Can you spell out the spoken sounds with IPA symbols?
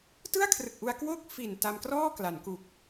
t ɯ˥˩ a̯ kʰ r ɯ˨˩ k̚ ʔ u˧ a̯ k w o˥˩ k̚ f i˨˩ n t a˧ m k r ɔː˥˩ k l a˩˦ n k u˨˩ k̚

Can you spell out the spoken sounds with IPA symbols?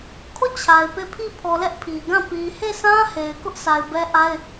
kʰ o˦˨ t͡ɕʰ a˨ ɪ̯ p e˦˨ pʰ i˦˨ pʰ ɔ˨ l ɛ˦ ʔ pʰ i˨ ɡ ã˦˨ p i˨ h e˦˨ s ã˦ h e˨ ɪ̯ k ʊ˦ ʔ sʰ a˨ ɪ̯ b ɛ˦ ʔ a˦ ɪ̯

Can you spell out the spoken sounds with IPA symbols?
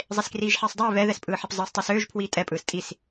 zˤ e s k r iː ʒ ħ iː sˤ dˤ iː β ɛ ð ɛ s pʼ ɯː ħ ɛ p zˤ ɯː s tˤ ɯ s øː ʒ pʰ w iː tʼ ɛ pʼ ɯː s tʼ i s

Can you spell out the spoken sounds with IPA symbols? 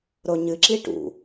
ɾ o ɲ ɨ ǁ i ʈ ṵ

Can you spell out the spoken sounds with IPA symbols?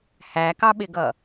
h æ k ɑ ɓ ɪ ɡ ʌ

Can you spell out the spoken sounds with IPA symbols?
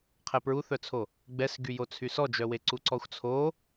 qʰ ɛ p ɹ u θ œ t͡sʰ o | ɡ͡b ɛ s ɡ y j o t͡sʰ y s ɔ d͡ʒ œ w e ǀ u ǀ ɔ xʷ t͡sʰ o

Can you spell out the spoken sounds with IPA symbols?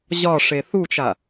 ʑ ɒ ʂ e θ u t͡ʃ a

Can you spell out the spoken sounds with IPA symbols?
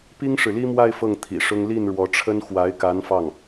p i˥ ŋ ʂ ɻ̩˨ l i˥ m w a˥˧ ɪ̯ f ɤ˥˩ ŋ t̪ʰ ḭ˨˩ ʂ ʊ˥ ŋ l i˥˩ n ɻ w ɔ˧˥ ʈ͡ʂʰ ə˥ n x w a˧˥ ɪ̯ k a˧˥ n f ɑ˥˩ ŋ

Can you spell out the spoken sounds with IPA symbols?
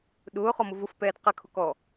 ɗ ʊː χ ɔ m ʊ v ʊ f p ɛː d q ɘ kʰ ʊ k ɔː

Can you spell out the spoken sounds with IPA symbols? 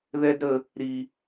ð ɛ˦ d ɾ ə˧ | ɾ i˧

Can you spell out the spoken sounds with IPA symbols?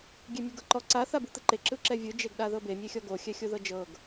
ɡʲ e mʲ o ɡ ɤ ǃ ɔ ǀ a θ a b u t̪ ɯ ǃ e ǁ ɯ ǁ ɛ vʲ ɯ d͡ʒ e ɡ ɗ a ð ɤ b e mʲ e xʲ ɔ ɡ o xʲ ɛ xʲ o ð ɤ d͡ʒ ɤ ɡ

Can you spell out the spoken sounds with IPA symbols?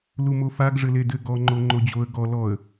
l u m o f a ɡ ʐ ɘ l e d ɘ ɡ ɔ ŋ͡ǃ o ŋ͡ǃ o d͡ʑ o ə̯ ɡ ɔ l ɔ ə̯

